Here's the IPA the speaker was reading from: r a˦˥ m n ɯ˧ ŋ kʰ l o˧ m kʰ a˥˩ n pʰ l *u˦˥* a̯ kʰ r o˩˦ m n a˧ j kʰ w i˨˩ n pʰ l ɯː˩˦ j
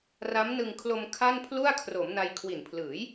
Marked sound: incorrect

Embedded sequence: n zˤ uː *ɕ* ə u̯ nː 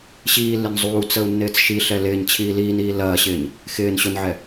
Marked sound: incorrect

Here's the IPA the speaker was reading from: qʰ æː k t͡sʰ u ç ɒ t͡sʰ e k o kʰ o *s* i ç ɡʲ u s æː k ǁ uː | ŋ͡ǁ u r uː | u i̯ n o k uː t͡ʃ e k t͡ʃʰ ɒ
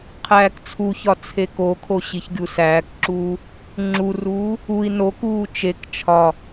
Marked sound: incorrect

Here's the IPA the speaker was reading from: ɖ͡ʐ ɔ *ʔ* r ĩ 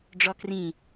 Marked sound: incorrect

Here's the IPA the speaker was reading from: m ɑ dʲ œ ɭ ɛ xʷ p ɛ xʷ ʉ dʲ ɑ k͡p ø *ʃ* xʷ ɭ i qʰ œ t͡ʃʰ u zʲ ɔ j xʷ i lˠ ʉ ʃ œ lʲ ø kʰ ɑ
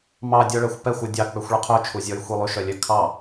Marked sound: incorrect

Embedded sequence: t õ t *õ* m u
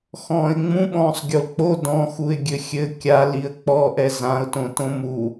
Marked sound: correct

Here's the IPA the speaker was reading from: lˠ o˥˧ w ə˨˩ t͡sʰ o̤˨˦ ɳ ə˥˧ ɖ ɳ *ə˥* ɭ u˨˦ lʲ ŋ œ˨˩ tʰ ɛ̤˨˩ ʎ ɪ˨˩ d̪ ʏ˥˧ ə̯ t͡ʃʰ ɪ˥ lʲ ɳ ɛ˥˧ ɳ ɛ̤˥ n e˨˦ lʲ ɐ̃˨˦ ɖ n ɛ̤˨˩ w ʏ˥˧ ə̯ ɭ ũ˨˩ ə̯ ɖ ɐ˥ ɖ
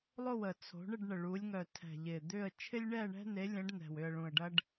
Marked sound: incorrect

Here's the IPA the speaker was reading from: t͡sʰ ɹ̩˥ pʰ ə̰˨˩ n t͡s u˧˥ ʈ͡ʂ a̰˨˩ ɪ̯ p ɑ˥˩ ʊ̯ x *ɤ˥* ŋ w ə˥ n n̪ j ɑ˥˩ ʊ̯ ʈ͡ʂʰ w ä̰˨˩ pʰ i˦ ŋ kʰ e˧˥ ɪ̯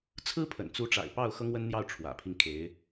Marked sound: correct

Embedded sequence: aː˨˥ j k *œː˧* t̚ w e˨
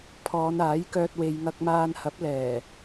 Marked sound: correct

